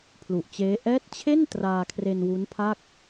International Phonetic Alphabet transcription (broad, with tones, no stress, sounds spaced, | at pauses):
pʰ l u˨˩ ʔ t͡ɕ eː˦˥ ʔ ɛː˦˥ t̚ t͡ɕʰ e˥˩ n t r aː˧ kʰ r e˧ n w u˦˥ n pʰ a˥˩ k̚